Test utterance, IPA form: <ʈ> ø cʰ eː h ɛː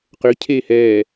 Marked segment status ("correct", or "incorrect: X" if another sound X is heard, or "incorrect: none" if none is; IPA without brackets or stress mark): incorrect: q